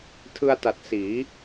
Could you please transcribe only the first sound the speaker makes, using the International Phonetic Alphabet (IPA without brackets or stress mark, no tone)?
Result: tʰ